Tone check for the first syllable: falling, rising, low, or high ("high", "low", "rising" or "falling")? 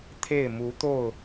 falling